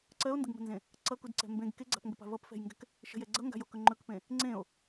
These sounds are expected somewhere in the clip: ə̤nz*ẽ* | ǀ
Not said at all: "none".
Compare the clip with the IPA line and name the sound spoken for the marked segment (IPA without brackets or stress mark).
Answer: ẽ